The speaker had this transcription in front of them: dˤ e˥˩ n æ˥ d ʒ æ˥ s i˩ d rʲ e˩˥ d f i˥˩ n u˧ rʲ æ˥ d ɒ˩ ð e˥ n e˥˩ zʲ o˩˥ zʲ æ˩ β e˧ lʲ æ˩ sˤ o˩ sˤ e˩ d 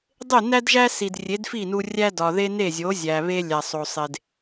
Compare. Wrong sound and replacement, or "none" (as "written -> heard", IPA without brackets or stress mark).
none